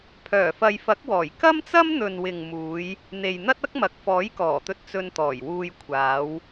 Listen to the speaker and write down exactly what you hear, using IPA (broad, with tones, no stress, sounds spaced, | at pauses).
pʰ œː˨˩ f ɐ˨ j f ɐ˨˥ k̚ w ɔː˨˩ j k ɐ˥ m t͡s ɐ˥ m n̪ ɵ˨ n w ɪ˨ ŋ m uː˨˧ j | n̪ e˨ j n̪ ɐ˥ t̚ ɐ˥ k̚ m ɐ˨ k̚ f ɔː˨˥ j k ɔː˨˩ t̪ ɵ˧ t̚ t͡s ɵ˧ n t̪ ɔː˨˩ j w uː˧ j kʷʰ aː˨˧ w